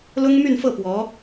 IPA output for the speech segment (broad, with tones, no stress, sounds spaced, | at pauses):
l ʊ˥ ŋ m y˥˧ n f ɤ˥˩ p w ɔ˧˥